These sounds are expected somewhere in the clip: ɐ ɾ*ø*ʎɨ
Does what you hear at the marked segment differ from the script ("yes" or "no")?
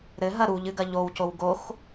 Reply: yes